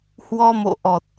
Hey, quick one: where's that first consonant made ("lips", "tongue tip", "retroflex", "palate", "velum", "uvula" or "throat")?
throat